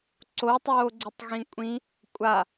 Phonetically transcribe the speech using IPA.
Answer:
ǀ o tˤ oː ɡ͡ǀ i tˤ ɣ ĩ kʷʼ ĩ | kʷʼ a

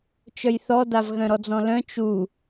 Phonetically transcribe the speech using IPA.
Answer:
t͡ʃ œ j θ ɔ d a v ɣ œ̃ ɾ ɔ d͡z ɔ̃ l œ̃ t͡ʃ u

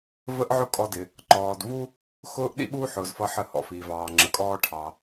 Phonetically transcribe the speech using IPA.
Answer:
v ə˥ ʔ ʕ ʊ˥ kʼ ɔ˧ d ɪ˩ | ǃ ɔː˩ d v u˥ | x ʊː˥ ʔ ɗ ḭ˥ ɓ uː˥ ħ ʊː˩ z f ʌ˧ ħ ə˧ h ɔ̰˩ f iː˩ v ɑː˩ ŋ͡ǁ ə˩ kʼ ɔː˧ ʈʰ ɑ˩

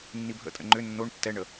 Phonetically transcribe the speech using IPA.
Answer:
nː i bʱ ə̰ tʼ ə̰ ŋ͡ǃ ʏ nː o ɳ tː ɛ ɳ ə

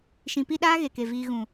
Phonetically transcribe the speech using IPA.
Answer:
ʃ ĩ˨ p i˧ ɗ aː˦ ɣ e˨ k e˨ v iː˧ ɣ ũ˨

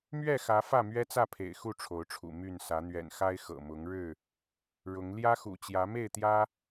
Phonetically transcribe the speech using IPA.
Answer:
m ɥ ɛ˥˨ x ä˨˦ f ä˥˨ m ɥ ɛ˦ t͡s ä˥˨ pʰ ḛ˨˩ ɪ̯ x u˥˨ ʈ͡ʂʰ o˨˦ ʊ̯ ʈ͡ʂʰ ṵ˨˩ m y˥˨ n s ä˨˦ n̪ ɥ ɛ̰˨˩ n x a˦ ɪ̯ x ɤ̰˨˩ m ʊ˨˦ ŋ ɻ ɻ̩˥˨ | ɻ ʊ˨˦ ŋ l j ä˦ x ṵ˨˩ t͡ɕ j ä˨˦ m e˥˨ ɪ̯ t̪ j ä˦

